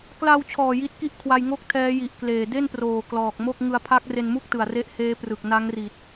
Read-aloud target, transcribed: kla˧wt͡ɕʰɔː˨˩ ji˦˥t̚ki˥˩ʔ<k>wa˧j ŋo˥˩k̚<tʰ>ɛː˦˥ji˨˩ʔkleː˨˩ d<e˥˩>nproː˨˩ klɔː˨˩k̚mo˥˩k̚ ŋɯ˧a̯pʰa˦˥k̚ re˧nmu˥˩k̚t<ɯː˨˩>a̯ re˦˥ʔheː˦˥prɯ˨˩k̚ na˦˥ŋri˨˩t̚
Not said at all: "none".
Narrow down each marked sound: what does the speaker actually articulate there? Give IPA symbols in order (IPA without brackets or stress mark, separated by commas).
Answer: kʰ, tʰ, e˥˩, ɯ˨˩